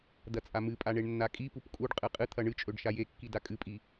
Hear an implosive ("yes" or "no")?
no